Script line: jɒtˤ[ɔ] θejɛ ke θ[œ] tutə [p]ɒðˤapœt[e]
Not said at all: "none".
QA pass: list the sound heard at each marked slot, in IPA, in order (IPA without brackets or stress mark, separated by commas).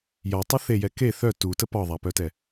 ə, œ, p, ɛ